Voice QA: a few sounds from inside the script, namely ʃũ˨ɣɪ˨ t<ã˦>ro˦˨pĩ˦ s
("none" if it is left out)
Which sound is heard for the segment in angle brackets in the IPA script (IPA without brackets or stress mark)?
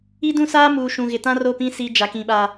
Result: ã˦